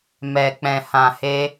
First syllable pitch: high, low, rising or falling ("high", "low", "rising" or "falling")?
low